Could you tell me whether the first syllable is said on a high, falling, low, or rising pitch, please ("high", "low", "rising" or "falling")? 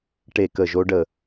falling